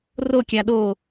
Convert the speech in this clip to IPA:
r o kʲ a ɗ o

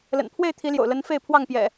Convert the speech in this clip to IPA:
l ə̰˨˩ n pʰ w e˥˨ ɪ̯ t̪ʰ i˨˦ l j o̰˨˩ ʊ̯ l ə˨˦ n f e˥˨ ɪ̯ pʰ w ɑ˥˨ ŋ p j ɛ̰˨˩

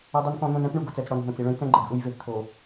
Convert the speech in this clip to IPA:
o˦ dˤ ɯ˦ n k ɔ̃˦ n̪ õ˦ n ɛ̃˦ p ɳ u˨ ɡ o˨ t͡s ɛ˨ t͡s ɽ ɔ˨ n ɦ õ˦˨ t͡s i˨ ɭ ɛ̃˦ j t͡s ɛ̃˦ ɡ͡ǃ ɛ˨ ɡ ʔ u˦ j v e˨ p t̪ʰ o˨

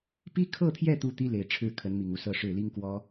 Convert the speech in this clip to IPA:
p i˥ kʰ ɤ˥˧ t̪ʰ j ɛ˥˩ t̪ u˥ t̪ i˥ l e˨˩ ɪ̯ ʈ͡ʂʰ ɻ̩˥˩ kʰ ə˧˥ n m i˨˩ ŋ u˧˥ s ɤ˥˧ ʂ ɻ̩˥˩ l i˥ ŋ k w ɔ˥

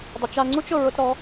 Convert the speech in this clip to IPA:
dˤ ɪ˨ t͡ʃ a˧ ŋ͡ǀ u˦ t͡ʃ ʊ˨ ɹ ʊ˧ t ɾ ɔ˨˦

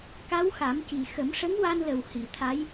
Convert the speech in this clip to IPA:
k a˧˥ w x a˨˩˦ m c i˨˩ x ə˨˩˦ m ʂ ə˧˥ ŋ w a˧ n l ə˨˩ w h i˨˩˨ t̪ʰ a˧˥ j

